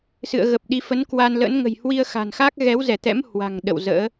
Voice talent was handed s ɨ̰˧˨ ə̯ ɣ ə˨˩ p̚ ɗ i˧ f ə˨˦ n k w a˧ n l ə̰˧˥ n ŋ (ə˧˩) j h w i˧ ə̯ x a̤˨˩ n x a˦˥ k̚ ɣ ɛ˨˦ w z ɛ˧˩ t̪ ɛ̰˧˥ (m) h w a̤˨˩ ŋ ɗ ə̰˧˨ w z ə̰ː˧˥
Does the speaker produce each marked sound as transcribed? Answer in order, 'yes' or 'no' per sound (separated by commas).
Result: no, yes